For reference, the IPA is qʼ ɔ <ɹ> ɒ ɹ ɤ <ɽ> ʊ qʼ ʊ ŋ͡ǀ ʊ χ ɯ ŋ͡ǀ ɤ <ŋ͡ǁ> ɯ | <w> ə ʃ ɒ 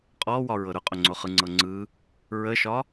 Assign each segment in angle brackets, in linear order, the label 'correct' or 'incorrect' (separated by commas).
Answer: incorrect, incorrect, incorrect, incorrect